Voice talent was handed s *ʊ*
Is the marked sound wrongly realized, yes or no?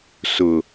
no